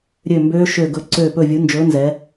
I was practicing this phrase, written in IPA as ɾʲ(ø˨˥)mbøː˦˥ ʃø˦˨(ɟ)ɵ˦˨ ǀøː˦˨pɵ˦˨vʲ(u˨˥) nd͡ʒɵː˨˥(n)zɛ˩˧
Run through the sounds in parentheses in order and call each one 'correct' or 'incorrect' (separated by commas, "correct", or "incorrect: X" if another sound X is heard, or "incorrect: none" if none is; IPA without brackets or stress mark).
incorrect: ø˦˨, incorrect: ɡ, correct, correct